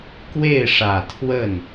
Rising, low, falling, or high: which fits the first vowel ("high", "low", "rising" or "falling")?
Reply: falling